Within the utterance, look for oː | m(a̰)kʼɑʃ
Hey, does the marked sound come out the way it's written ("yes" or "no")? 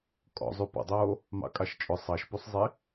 no